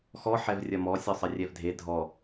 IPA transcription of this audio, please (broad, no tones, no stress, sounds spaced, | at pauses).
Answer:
x ɔ ħ ɛ v rʲ ɐ m ɔ sʲ ɔ sˤ ɘ rʲ ɛ v dʱ e dʱ ɔ